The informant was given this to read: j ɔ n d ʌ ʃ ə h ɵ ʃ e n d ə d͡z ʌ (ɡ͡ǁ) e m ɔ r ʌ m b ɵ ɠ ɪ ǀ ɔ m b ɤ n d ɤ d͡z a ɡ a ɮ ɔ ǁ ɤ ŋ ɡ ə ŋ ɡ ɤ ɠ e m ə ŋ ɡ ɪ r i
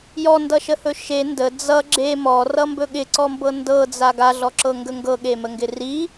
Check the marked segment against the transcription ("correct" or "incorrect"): correct